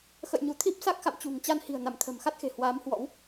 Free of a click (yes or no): yes